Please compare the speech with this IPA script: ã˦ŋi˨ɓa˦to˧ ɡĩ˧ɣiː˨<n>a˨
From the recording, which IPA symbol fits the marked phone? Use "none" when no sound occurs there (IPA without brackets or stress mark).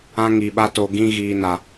n